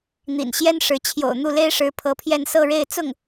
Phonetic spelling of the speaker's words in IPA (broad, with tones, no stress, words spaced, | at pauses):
n̪ḭ˨˩nɕjɛ˥n ʂɻ̩˧˥ t͡ɕʰjo̰˨˩ʊ̯n̪u˥˩le˥ɪ̯ʂɻ̩˧˥ pʰɤ˧˥pʰjɛ˥˧n sɤ˥˧ɻe˥˧ɪ̯ t͡sʊ˥˩ŋ